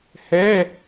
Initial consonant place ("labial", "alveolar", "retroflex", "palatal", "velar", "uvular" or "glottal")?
glottal